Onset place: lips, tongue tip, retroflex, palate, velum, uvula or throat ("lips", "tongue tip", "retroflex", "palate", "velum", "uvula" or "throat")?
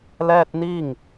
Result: tongue tip